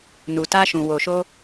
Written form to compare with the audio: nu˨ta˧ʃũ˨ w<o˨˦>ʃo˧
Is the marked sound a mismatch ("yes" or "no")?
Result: yes